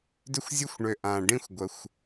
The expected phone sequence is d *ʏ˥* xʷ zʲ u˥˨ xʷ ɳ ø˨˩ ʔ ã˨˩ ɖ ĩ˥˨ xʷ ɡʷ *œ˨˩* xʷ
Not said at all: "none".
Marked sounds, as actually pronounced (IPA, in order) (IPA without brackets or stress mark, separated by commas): ʏ˥, ə˨˩